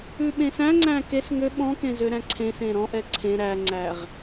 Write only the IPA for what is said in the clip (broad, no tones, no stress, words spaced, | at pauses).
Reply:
ʉɓẽsæ̃ŋ͡ǀæ̃ kes ŋø ɓɔ̃kẽ zøɾæ̃ǀʰẽsẽ ɾɔ̃ʔɛ ǀʰẽ ɾæŋ͡ǀæʁ